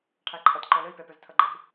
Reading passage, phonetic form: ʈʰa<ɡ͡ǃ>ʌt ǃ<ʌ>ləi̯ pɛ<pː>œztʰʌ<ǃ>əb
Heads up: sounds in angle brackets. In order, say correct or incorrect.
incorrect, incorrect, incorrect, incorrect

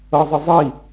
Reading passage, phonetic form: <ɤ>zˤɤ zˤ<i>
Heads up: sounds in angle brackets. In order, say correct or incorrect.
correct, correct

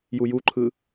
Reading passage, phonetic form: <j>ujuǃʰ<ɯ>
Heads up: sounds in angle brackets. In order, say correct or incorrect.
correct, correct

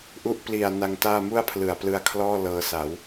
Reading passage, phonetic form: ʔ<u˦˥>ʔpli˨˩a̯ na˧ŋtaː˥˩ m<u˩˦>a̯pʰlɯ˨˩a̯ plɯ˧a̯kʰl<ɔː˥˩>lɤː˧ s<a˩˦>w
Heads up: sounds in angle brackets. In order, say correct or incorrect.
correct, incorrect, correct, correct

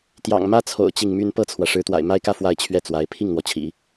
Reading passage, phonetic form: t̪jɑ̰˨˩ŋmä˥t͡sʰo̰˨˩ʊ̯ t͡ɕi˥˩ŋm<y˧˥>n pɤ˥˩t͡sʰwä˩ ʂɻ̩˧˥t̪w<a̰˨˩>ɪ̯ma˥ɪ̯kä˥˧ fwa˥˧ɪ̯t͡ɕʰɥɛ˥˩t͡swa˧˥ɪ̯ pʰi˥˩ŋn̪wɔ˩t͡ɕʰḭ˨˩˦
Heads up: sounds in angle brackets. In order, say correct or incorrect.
incorrect, correct

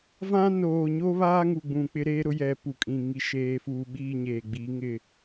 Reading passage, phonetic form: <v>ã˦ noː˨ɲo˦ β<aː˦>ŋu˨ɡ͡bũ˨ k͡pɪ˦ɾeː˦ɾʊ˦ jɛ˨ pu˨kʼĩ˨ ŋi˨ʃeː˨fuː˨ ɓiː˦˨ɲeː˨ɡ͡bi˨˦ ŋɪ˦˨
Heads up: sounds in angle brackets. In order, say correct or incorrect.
correct, correct

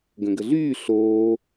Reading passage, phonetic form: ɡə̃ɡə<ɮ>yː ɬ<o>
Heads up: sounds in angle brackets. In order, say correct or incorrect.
correct, incorrect

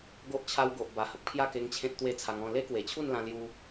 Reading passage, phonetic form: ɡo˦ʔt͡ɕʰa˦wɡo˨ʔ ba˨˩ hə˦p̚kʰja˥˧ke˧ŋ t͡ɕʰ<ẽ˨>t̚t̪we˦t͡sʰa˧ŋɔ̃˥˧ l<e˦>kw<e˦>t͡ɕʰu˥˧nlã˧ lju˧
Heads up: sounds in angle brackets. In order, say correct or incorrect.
incorrect, correct, incorrect

